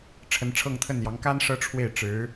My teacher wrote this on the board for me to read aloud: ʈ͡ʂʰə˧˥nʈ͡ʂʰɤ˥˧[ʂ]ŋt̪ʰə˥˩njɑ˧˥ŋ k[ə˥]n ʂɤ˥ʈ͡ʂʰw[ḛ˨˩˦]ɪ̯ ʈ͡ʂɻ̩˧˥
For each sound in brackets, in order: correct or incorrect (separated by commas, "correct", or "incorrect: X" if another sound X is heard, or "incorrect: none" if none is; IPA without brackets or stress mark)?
incorrect: none, incorrect: a˥, incorrect: e˥˩